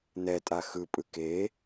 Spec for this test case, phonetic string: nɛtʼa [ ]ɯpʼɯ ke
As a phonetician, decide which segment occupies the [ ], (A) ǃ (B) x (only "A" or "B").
B